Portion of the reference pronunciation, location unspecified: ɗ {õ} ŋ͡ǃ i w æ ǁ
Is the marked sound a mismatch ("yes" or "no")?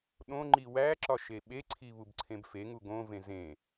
no